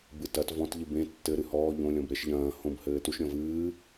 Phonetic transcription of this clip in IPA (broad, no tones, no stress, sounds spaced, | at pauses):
b ɨ t ɐ t v ɔ̃ t ʎ ɨ b ẽ tː ɘ ɾ ɨ h ɔː ʎ õ lʲ ɔ̃ b ɾ e ʃ ʎ ɐ̃ː h õ b h ɘː t u ʃ ɾʲ ɔ̃ v ɨː